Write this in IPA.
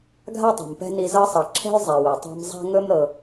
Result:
ɡʱ a˥ tˤ ɛ̤˩ m p ɛ̤˦ n i˨ z ɤ˦ sˤ ɤ˩ ǁʰ ɛ̤˥ j zˤ ɛ˩ w ɵ˩ tˤ a̤˦ m zˤ a̤˥ ŋ ɵ˥ m ɾ ɤ˨

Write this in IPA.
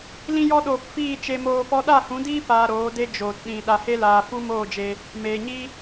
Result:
l ĩ˧ j ɔ˧ ɗ oː˨ p f iː˦˨ t͡ʃ e˧ m oː˧ p ɔ˦ ɗ a˦˨ h ũ˨˦ d iː˦ p aː˧ ɾ oː˨˦ d e˦ d͡ʒ oː˨ t ɗ ĩ˨ ɗ a˨ h e˧ l aː˨ f u˦ m oː˦˨ d͡ʒ e˧ | m eː˨ ɲ i˦

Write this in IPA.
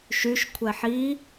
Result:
ʃ y ʃ kʷʰ ɛ ħ i

